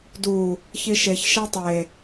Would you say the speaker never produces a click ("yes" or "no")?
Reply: yes